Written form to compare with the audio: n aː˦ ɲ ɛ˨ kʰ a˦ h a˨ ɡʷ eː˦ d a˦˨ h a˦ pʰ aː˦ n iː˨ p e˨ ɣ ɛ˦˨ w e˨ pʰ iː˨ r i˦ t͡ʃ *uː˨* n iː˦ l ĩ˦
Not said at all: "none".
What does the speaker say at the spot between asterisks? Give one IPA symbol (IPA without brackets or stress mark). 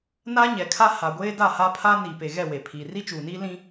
uː˨